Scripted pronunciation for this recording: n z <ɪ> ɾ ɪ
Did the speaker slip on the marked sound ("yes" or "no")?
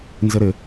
no